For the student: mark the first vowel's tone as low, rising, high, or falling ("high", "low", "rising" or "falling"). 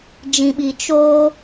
low